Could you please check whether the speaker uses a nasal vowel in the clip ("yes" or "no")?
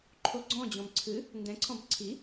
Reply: yes